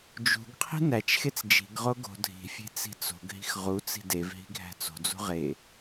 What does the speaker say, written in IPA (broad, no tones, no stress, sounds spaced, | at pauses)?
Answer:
d͡ʒ ṳ ɡ qʰ i̤ n æ t͡ʃ x e t͡s d͡ʒ i̤ ɡ ʁ o ɡ o̤ dʱ i̤ fʲ e̤ t͡s i̤ t͡s o̤ ɡ ɦ i̤ x ʁ u t͡s i̤ d e v ɦ i̤ ɡʱ æ̤ t͡s o̤ d͡z ṳ ʁ e